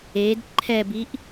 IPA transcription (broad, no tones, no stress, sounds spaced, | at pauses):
e d ǃʰ ɛ b i ʔ